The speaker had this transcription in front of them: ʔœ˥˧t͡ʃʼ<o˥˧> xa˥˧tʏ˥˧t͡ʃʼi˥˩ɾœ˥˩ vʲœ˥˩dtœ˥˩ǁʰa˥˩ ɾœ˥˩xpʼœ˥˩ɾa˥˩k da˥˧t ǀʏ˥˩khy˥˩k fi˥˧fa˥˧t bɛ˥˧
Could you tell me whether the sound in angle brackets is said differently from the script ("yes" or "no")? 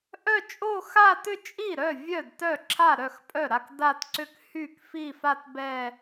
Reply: no